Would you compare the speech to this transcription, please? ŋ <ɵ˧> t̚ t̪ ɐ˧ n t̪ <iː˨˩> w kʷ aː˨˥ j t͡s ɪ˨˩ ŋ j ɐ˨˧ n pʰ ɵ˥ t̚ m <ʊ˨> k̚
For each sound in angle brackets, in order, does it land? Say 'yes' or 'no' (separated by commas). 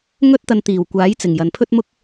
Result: no, yes, no